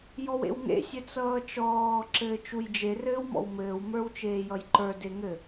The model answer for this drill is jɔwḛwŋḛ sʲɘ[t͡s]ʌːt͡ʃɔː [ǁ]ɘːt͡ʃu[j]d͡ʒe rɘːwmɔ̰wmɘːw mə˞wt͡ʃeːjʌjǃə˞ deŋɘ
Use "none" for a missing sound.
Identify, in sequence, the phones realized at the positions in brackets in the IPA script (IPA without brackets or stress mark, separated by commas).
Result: t͡s, ǁ, j